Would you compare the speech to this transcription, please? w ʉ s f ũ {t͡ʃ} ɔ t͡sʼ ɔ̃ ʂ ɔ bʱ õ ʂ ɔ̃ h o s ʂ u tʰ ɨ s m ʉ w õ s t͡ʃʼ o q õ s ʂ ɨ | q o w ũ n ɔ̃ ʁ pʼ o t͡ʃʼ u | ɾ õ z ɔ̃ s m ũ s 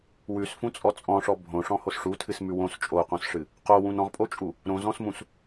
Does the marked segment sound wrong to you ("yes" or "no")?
yes